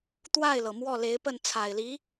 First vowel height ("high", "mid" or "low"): low